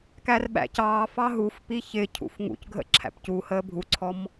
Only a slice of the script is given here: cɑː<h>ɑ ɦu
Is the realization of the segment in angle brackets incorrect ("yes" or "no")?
yes